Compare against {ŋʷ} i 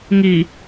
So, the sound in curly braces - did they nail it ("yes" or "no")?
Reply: no